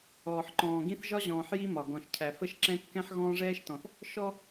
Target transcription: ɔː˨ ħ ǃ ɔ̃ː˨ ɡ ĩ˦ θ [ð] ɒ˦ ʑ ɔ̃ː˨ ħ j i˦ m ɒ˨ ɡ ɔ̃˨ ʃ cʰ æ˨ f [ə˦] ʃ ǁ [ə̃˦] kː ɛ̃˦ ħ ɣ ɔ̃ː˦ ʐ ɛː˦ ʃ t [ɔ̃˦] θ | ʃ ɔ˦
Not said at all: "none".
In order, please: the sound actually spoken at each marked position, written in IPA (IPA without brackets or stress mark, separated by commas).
ʒ, ə˦, ɛ̃˦, ɔ̃˨